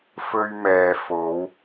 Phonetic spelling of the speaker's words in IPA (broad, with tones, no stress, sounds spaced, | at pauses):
f ɵ˧ ɥ m ɛː˨ f o˨˧ w